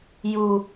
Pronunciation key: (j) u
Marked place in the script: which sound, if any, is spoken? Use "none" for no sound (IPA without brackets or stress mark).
j